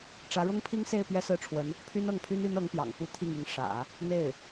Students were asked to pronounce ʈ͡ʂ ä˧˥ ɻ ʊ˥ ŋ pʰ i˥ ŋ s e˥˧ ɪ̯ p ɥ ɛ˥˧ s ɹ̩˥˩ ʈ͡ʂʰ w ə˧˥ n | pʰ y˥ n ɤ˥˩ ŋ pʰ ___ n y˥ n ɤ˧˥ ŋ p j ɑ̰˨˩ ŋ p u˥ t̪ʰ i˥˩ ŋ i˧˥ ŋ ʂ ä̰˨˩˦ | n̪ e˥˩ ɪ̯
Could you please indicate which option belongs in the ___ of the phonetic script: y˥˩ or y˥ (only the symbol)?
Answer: y˥